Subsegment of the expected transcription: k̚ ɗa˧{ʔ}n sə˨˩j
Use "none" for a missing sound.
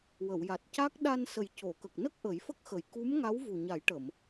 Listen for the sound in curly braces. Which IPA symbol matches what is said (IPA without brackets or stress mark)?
none